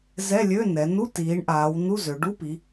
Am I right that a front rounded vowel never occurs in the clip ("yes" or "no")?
no